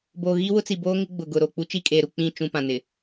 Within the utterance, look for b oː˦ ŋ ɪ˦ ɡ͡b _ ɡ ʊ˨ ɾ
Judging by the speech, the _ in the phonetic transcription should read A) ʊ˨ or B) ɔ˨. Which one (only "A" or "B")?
A